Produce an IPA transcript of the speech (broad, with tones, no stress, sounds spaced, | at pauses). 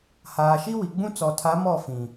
h aː˨ ʃ i˦ w i˨ ɡ͡b ũ˦ t͡s ɔ˨ tʰ a˨˦ m ɔ˦˨ f ĩ˨